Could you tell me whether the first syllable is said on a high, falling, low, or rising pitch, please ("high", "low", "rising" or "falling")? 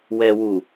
low